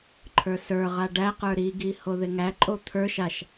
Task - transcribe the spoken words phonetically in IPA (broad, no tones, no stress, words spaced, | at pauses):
ǃʰə˞sə˞ʁa ɖæqə˞ ɾiɡi hoðɪŋæǃʼo t̪ʰə˞ʃ aʃ